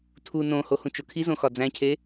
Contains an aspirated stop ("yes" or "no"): yes